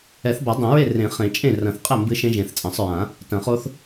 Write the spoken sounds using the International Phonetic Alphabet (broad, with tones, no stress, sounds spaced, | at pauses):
ɛ˨˩˦ θ b a˨˩˦ dˤ ɐ̃˨˩˦ ɹ e˥˩ r ẽ˨˩˦ χ ẽ˨˩˦ t͡ʃʼ ẽ˥˩ r ɐ̃˨˩˦ θ qʼ ɛ˥˩ m b ɨ˦˥ ʃ ẽ˦˥ ʒ ẽ˨˩˦ θ t͡sʼ ɐ̃˨˩˦ sˤ ɹ ã˨˩˦ | t ɐ̃˨˩˦ χ o˦˥ θ